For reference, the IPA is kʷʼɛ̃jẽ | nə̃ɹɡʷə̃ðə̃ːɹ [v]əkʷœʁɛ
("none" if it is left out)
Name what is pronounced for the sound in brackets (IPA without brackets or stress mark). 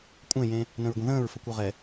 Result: f